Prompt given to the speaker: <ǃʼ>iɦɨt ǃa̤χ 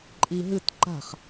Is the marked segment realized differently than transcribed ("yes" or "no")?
no